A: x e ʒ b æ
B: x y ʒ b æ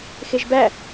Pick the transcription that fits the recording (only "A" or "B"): A